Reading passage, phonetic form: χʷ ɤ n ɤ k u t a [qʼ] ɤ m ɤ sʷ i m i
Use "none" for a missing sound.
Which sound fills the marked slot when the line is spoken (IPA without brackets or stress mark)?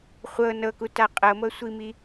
qʼ